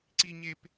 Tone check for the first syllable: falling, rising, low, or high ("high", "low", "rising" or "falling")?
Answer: high